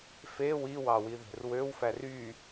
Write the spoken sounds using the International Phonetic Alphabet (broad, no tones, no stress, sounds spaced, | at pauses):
f e w i w ɑ w i ð e̤ r w ø w f æ r y